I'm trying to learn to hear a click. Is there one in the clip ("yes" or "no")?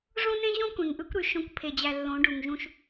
no